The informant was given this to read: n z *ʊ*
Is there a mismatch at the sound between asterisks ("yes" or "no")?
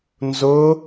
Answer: no